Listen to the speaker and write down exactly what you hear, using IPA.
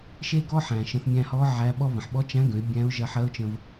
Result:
ʃ e˥ ɡ ɔ˥ ħ æ̃˩ ʃ ə̃˩˧ θ mʲ æ̃˧ h ɔ˧˥ ʕ æ˧˥ ɓ ɔ˥ v ə̃˩ ħ ɓ ɔ˧˥ t͡ʃ æ̃˧˥ ɡ ə̃˩˧ ɪ̯ bʲ æ̃˧˥ ʊ̯ ʒ ɜ˧ ħ ɜ˧˥ ʊ̯ t͡ʃ ə̃˧ v

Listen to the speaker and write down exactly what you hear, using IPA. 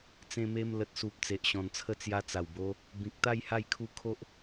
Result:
t͡s ẽ˧ m e˧ m l ə˨ t̚ s u˨ p̚ t͡s e˨ ʔ ɕ ɔ̃˨˩ n t͡sʰ ə˧ t͡s j a˧ t͡s a˨˩ w b o˧ | b ĩ˨ k̚ t̪ a˥˧ j h a˥˧ j kʰ u˦ kʰ o˦ ʔ

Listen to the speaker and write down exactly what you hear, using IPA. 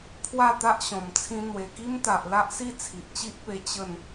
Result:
pʰ w a˥˧ t̪ a˦ ʔ ɕ ɔ̃˨˩ m t͡sʰ ĩ˧ n̪ w e˨˩ k i˦ m t̪ a˨ ʔ l a˦ ʔ s i˦ t͡sʰ i˨ ʔ t͡ɕ i˦ ʔ p e˦ t͡ɕ ə˥˧ n

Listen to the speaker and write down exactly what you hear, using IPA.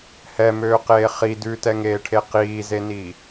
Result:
h ɛ m øː q eː χ i d ʉ t ɛ ŋ eː ʈʰ e q iː z e n i

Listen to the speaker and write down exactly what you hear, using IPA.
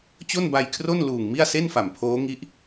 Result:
t͡ɕ o˥˩ n b a˧ j kʰ r o˥˩ n l uː˨˩ ŋ m i˥˩ a̯ s e˥˩ n f a˨˩ m pʰ oː˦˥ ŋ i˦˥ ʔ

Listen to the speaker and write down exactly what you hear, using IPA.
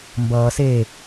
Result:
m b ʌː s e

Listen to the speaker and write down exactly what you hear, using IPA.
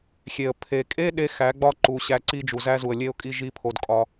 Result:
xʲ e˨ ə̯ pʰ e˨ kʼ e˦ ɗ e˦ x æ˨˦ ɡ͡b ɒ˦ ǃ u˨ ɕ æ˨ ǀ i˦ d͡ʒ u˨ z æ˦ z u˨ ə̯ lʲ e˦ ʊ̯ kʼ i˦ ʒ i˦ pʰ o˦ d kʼ ɒ˦

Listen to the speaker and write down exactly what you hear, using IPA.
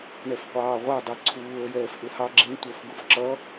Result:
ɳ ɛ f qʷ ɑː ʁʷ ɛ dˤ æ ǀʰ uː ə̯ j ɛː f ʔ ɪ h ɑ ɡ͡ǁ i ɳ tʷ ə˞ f ɡ ʊ f ǁ ʌ

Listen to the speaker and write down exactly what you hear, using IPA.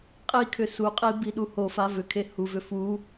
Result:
qʼ i kʰ ʏ s u qʼ i b i ɗ u h o f a v ʏ kʰ e h u v ʏ f u

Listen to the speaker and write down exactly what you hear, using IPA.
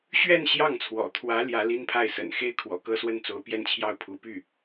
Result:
ɕ ɥ ɛ˥˧ n ɕ j ɑ˥˩ ŋ t͡sʰ w ɔ̰˨˩ t̪ʰ w ä˧˥ l j ä˧˥ l i˥ n pʰ a˥˩ ɪ̯ s ə̰˨˩ n x e˥ ɪ̯ kʰ w ɔ̰˨˩ k ɤ˥˧ s w ə˥˩ n t͡s o˧˥ ʊ̯ p j ɛ˥˧ n t͡ɕʰ j ɑ˥˩ ʊ̯ pʰ u˧˥ p y˥˩

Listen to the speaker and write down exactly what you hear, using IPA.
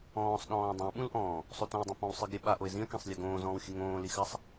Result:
ɔ̃ː sˤ ɗ ɔ̃ː dˤ õ ɓ ũ l ʔ ɔ̃ː | sˤ o t ũ ɪ̯ dˤ ũ p ɔ̃ w sˤ ɛ ɡ ɾʲ ɘ ɓ a ʔ o ɪ̯ z ĩ ə̯ kʲ ã sˤ lʲ ɛ ɡ õː z ɔ̃ː w xʲ ɘ ŋ õː l i x a sˤ

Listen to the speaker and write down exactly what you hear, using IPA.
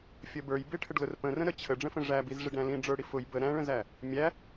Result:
fʲ ə b ə˞ j b ɪ ʈʰ ə ɖ l ʊ r p ə̃ r ə̃ ɾ ə t͡ɕʰ ə ɖ͡ʐ ə̃ f ə̃ ʐ æ b i z ʐ i ɖ ɾ æ̃ l ĩ ɖ͡ʐ ə˞ ɽ i f ʊ j b ə ɾ æ̃ ɭ ə̃ z æ | mʲ æ

